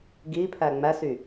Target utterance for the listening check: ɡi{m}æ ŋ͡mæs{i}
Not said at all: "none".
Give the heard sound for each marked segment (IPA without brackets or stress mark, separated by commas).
pʰ, y